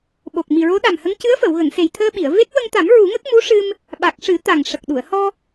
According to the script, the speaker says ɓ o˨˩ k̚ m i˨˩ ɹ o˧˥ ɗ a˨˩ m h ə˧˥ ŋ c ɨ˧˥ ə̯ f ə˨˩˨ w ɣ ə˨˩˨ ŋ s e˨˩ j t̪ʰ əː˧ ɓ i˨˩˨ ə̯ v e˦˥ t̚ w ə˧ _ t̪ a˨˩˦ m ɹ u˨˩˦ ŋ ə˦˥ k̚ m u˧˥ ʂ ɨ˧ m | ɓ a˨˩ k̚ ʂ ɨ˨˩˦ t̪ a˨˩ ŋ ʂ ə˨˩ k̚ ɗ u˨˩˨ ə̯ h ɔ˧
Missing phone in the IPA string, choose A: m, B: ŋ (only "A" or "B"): B